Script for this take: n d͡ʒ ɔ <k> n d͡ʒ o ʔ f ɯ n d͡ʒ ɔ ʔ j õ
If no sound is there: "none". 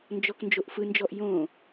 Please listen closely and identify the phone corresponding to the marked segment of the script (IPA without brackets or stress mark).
k